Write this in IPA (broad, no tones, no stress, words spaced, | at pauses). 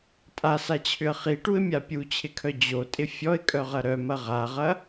tʼasat͡ɕʰʏə̯ χiʈuɪ̯mʲa pʲut͡ɕʰɪkʰœ d͡ʑotʼɪ fʲɔɪ̯kʼœʁɐ ɾœmɐ ʁaʁɐ